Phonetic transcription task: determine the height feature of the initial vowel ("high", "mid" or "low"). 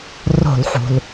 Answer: mid